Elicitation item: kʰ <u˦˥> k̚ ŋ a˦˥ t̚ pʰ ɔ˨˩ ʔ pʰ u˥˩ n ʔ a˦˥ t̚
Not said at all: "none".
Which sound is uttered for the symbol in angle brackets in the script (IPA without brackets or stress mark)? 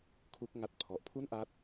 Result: u˦˥